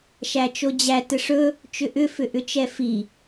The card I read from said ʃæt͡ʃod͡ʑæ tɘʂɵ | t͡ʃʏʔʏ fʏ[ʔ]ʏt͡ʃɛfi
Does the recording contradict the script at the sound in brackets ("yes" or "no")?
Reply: no